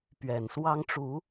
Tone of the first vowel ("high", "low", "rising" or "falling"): low